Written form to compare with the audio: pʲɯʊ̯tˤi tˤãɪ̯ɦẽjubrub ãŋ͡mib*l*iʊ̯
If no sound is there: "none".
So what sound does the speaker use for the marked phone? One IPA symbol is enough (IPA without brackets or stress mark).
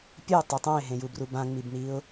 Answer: n